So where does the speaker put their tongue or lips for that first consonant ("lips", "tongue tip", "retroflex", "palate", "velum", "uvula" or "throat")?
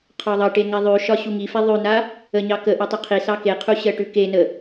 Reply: uvula